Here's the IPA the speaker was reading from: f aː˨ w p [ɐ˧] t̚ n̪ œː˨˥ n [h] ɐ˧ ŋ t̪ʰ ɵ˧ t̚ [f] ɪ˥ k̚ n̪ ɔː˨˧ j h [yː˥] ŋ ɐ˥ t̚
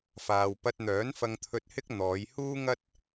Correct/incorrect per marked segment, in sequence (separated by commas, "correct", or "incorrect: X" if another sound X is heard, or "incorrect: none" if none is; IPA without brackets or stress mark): correct, incorrect: f, incorrect: h, incorrect: uː˥